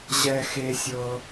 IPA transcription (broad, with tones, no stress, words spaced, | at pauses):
ʑɛ˥xe˥sʲɤ˥